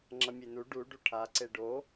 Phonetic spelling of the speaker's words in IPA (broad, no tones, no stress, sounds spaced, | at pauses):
ŋ͡ǁ ʌ mʲ e n u ɖ u ɖ u ʈʰ a ǀ e ɖ o